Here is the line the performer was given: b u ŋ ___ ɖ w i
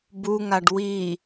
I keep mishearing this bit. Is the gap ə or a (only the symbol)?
a